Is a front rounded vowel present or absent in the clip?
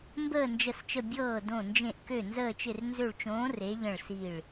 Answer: present